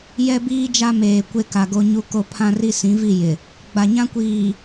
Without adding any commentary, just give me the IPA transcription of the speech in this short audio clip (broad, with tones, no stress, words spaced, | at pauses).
jɛ˦biː˦d͡ʒa˦meː˨ kʷe˦ka˨ɡo˦ɲu˦ ko˦ pʰã˦ri˦sĩ˨˦ vi˦˨ jɪ˨ | ɡ͡ba˨ɲã˦kʷiː˨